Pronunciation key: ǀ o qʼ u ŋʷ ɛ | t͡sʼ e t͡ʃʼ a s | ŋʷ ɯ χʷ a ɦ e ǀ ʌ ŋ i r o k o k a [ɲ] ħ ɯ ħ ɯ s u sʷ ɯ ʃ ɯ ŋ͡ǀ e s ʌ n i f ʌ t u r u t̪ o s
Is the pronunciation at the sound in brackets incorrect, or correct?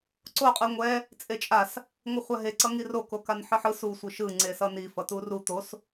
incorrect